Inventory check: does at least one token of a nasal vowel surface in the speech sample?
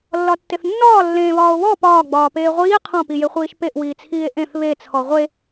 yes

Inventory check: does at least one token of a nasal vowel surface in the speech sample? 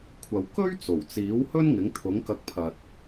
no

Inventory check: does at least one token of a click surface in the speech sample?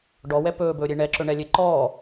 yes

